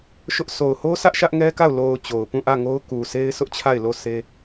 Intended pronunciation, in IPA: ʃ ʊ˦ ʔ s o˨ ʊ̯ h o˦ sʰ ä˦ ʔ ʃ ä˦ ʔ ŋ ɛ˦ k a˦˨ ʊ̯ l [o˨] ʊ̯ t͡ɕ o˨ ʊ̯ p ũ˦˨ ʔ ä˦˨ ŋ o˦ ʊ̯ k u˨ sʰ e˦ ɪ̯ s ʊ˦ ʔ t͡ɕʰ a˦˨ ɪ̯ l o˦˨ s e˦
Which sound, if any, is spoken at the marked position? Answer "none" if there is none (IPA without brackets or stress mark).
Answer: o˨